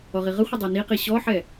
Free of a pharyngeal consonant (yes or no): no